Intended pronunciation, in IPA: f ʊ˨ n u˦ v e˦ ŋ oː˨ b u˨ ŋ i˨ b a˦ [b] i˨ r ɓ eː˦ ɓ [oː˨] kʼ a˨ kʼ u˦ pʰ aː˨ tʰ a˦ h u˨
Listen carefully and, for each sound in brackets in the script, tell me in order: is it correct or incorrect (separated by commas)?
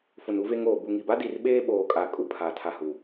incorrect, correct